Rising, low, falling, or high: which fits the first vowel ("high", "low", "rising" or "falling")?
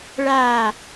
falling